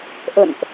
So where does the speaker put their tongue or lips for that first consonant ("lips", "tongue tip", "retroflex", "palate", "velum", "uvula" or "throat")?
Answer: throat